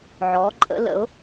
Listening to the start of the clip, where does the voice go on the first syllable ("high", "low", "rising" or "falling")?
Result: rising